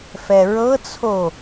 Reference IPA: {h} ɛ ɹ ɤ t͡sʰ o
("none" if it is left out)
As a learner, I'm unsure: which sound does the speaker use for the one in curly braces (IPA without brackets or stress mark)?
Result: f